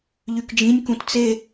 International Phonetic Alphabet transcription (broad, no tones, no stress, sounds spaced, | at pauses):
ʎ y k d͡ʒ ĩ nʲ k ũ t t͡s e